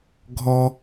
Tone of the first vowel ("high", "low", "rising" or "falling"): high